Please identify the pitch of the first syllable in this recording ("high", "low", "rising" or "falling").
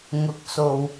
low